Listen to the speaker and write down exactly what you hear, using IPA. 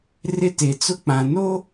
r ɪ˦ t e˨ t͡s ʊ˦ k͡p ã˨ n o˦

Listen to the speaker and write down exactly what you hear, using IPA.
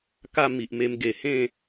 k a˥˧ m i˨ ʔ m e˧ m ɡ e˨˩ h ẽ˥˧

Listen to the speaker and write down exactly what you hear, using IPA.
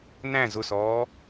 n æ̃ z ʊ s ɔː

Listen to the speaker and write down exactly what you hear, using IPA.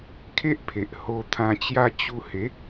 kʰ e˦ ʔ pʰ e˨ ʔ h o˧ t̪ʰ ã˧ t͡ɕ j a˦ t͡ɕ u˧ h e˨˦

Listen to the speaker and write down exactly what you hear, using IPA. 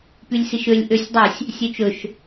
p y lʲ s i ʃ ø lʲ ʔ ø sʲ dˤ ɵ sʲ | sʲ ø t͡ʃ ɵ ʃ

